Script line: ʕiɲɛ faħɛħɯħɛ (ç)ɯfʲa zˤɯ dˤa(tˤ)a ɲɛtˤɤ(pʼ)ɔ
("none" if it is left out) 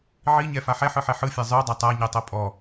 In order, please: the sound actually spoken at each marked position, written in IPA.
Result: ħ, tˤ, pʼ

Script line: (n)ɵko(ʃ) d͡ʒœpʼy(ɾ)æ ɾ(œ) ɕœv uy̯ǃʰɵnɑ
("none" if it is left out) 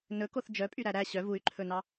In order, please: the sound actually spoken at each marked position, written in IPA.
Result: n, θ, ɾ, æ

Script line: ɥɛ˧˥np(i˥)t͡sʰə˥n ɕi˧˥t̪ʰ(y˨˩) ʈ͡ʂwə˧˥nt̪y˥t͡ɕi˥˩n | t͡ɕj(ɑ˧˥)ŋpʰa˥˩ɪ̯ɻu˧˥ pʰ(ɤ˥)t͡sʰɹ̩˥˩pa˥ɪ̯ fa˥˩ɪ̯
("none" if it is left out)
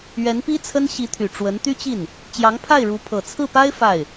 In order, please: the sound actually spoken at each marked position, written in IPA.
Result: i˥, y˨˩, ɑ˧˥, ɤ˨˩

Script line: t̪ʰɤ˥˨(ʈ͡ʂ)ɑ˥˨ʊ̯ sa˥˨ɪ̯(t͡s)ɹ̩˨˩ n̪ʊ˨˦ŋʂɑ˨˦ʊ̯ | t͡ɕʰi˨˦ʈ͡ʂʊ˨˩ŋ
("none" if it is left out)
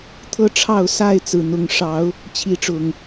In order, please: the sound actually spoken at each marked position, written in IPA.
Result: ʈ͡ʂʰ, t͡s

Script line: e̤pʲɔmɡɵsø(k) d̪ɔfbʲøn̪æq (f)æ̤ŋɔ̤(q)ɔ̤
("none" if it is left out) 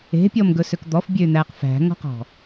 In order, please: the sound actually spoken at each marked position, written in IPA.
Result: k, f, q

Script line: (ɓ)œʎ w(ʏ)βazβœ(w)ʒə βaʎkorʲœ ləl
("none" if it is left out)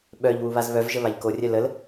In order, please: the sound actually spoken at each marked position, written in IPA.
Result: ɓ, u, v

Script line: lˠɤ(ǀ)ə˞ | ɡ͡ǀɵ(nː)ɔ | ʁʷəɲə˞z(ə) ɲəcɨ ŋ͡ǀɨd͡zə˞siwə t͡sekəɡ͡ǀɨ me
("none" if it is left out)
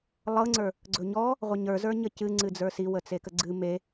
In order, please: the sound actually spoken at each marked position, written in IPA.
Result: ŋ͡ǀ, ɲ, ə˞

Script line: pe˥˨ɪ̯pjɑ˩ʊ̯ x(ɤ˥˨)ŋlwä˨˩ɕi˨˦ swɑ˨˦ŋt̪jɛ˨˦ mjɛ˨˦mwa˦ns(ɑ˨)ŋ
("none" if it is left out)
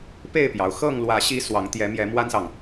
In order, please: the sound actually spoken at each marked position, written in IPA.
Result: ɤ˥˨, ɑ˨

